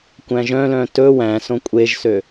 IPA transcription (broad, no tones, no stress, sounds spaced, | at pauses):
kʷ æ̃ ʒ œ̃ l œ̃ t ɵ w æ̃ s õ kʷʼ e ʒ s ø